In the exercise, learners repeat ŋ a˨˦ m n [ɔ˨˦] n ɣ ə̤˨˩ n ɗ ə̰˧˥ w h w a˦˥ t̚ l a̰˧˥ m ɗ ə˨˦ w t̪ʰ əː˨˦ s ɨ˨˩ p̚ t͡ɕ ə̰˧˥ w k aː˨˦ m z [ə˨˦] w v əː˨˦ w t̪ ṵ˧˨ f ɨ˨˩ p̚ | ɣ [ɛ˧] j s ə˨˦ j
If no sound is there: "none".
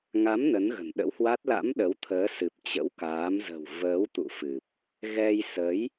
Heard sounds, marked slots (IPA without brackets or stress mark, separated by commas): ə˨˦, ə̤˨˩, ɛ˧